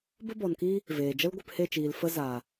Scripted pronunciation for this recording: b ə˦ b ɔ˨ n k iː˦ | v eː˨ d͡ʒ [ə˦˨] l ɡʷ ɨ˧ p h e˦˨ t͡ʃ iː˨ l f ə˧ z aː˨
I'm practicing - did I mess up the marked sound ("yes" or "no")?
yes